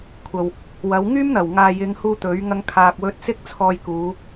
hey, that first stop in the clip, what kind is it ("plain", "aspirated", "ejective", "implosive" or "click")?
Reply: aspirated